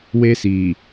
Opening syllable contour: high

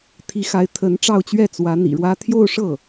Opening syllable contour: rising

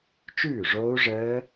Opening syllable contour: falling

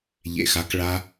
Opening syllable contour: low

